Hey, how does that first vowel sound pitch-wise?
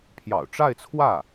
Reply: low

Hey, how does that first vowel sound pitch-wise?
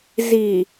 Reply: low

